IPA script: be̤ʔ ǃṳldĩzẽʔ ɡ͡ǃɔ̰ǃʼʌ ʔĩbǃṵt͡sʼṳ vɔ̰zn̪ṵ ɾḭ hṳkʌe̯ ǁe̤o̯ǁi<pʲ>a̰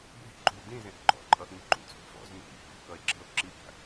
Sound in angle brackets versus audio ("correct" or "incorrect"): correct